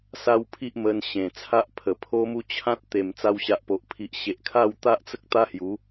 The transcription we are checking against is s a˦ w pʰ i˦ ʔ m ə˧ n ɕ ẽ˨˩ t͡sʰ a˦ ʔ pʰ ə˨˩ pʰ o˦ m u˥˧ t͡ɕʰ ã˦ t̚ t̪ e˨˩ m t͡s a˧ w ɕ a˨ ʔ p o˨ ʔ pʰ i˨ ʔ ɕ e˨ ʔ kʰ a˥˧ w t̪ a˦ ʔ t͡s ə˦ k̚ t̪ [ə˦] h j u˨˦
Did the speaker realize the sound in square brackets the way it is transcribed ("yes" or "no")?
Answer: no